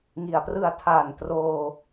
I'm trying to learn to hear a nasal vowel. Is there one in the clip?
no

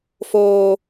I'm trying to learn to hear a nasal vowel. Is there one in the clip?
no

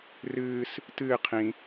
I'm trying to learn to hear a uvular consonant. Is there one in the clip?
yes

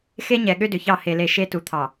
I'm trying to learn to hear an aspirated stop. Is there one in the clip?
yes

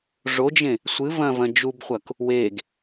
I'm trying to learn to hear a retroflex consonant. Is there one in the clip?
yes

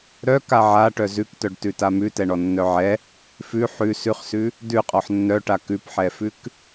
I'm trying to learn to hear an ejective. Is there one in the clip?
yes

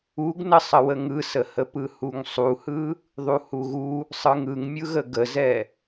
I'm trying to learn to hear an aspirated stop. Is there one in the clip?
no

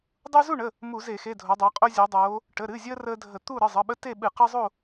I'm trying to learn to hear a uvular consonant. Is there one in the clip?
yes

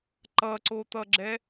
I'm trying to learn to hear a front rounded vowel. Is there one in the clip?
no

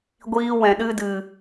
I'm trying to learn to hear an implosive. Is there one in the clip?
yes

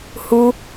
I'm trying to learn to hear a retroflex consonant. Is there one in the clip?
no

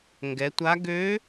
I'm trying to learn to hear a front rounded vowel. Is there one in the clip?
yes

